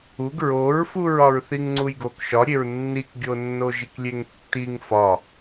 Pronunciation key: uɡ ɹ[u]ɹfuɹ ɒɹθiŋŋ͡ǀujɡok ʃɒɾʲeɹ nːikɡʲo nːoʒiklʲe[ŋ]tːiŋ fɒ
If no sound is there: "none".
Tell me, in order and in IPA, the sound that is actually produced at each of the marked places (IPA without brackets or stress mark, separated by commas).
o, ŋ